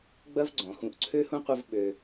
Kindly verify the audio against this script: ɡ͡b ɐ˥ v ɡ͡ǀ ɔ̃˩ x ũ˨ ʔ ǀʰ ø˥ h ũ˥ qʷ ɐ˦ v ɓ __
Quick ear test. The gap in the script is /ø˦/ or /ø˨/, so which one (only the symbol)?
ø˨